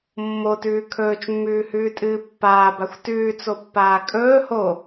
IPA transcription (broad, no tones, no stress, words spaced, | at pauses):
mːotʉː kʰɵːt͡ʃmːʉːhʉːtʼɨː pːaːbaxʷ tʉːt͡sopːaː kʼɵː ho